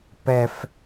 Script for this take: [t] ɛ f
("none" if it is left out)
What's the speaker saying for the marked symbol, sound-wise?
p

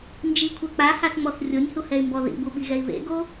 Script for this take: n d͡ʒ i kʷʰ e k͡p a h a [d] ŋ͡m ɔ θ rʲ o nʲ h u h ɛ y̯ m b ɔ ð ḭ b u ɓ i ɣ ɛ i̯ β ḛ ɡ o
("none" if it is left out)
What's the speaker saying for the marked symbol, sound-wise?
θ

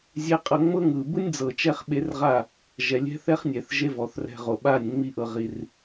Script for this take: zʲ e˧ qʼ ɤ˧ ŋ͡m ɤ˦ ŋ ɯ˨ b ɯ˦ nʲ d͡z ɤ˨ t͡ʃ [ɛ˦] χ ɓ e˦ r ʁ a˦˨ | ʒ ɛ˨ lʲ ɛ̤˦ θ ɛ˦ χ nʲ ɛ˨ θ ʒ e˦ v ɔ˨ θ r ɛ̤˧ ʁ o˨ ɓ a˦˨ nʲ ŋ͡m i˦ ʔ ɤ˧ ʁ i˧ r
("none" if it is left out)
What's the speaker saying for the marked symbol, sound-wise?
ɛ˦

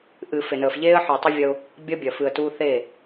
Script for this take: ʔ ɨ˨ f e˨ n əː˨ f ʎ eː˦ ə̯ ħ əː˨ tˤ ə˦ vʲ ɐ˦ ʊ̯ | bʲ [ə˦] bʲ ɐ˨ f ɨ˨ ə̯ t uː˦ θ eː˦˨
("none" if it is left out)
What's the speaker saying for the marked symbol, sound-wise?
ɐ˦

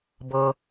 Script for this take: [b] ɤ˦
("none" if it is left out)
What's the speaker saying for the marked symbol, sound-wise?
b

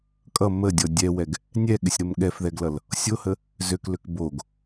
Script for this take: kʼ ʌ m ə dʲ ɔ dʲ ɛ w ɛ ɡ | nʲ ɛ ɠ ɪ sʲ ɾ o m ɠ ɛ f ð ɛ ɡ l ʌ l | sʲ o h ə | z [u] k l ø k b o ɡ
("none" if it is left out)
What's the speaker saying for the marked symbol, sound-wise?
ø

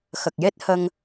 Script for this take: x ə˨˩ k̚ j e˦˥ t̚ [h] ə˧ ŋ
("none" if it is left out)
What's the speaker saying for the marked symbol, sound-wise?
h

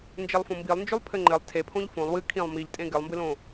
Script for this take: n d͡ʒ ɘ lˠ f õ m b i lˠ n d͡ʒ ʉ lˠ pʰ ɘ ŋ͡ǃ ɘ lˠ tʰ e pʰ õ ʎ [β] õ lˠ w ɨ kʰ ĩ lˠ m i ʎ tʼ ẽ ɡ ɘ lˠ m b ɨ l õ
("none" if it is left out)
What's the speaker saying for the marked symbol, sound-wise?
f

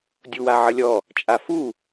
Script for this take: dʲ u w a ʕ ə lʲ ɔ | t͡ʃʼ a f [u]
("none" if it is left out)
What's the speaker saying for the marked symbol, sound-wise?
u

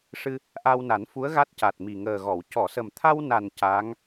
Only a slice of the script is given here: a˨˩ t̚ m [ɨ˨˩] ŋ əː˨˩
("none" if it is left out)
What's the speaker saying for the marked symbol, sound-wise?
i˨˩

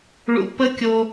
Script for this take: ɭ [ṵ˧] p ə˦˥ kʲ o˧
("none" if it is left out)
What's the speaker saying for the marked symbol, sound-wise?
ṵ˧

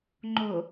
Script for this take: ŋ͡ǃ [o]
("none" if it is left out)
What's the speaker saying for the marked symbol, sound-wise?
o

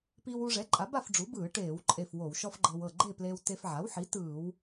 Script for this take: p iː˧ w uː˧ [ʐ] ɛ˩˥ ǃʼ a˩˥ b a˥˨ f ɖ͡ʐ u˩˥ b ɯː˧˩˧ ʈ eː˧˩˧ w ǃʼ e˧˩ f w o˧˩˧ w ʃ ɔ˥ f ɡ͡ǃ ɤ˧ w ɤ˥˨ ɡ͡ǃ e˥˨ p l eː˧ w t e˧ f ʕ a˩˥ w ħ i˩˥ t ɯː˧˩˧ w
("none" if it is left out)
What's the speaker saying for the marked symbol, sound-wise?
ʐ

